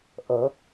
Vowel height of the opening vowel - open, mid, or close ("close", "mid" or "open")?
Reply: mid